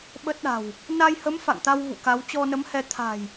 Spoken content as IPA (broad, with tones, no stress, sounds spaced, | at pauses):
ɓ ə˦˥ t̚ ɗ a̤˨˩ w | n a˧ j h ə˨˦ m f a̰˧˨ ŋ t̪ a˧ w v ṵ˧˨ k a˨˦ w t͡ɕ ɔ˧ n ə˨˦ m h ɛ˧ t̪ʰ a̤˨˩ j